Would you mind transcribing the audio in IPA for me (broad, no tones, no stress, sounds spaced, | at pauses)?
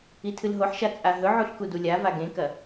i tʰ ɨ l ɦ o ħ ʃ a t͡sʼ a ɦ ɵ ʕ u ɬ k u d u lʲ a v a ɡ ẽ k ɐ